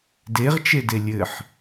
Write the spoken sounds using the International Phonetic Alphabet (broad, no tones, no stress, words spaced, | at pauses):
deʁt͡ʃede lʲɘħ